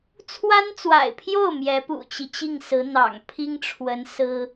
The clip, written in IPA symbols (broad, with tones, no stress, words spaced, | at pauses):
t͡sʰwa˥nt͡swa̰˨˩ɪ̯pʰjo˥˩ʊ̯ mjɛ˧˥pṵ˨˩t͡ɕi˦ t͡ɕi˥˩ŋsɹ̩˧˥ n̪ɑ̰˨˩ŋ pʰi˥ŋʈ͡ʂʰwə˧˥n sɹ̩˥